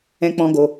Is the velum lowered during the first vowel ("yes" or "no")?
yes